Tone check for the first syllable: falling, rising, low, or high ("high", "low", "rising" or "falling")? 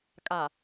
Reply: low